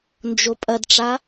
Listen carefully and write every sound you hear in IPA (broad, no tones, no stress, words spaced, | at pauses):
nd͡ʒopʼɐdʈ͡ʂa